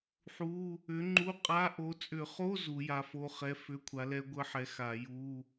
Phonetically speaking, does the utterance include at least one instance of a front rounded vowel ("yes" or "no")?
yes